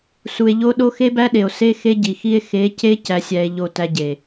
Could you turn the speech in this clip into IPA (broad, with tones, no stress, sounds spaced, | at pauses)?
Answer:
s u˨ e̯ ʎ o˦ ɗ o˦ x e˦ b æ˦ ɗ e˨ o̯ s e˦ x e˦ ɟ i˨ x i˦ e̯ x e˨˦ c e˦ c æ˦ sʲ æ˦ e̯ ʎ o˦˨ t æ˦ ɟ e˨